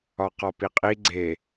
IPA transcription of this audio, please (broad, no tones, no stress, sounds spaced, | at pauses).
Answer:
ɒ q ɒ p i qʼ i ɡ͡ǀ e